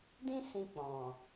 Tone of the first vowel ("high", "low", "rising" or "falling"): high